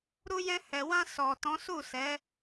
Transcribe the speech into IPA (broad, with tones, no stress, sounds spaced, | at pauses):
ɾ u˧ j ɛ̃˧ h ɛ˨ w ã˧ s ɔ˨ t ɔ̃˨˦ s u˦˨ s ɛ˨˦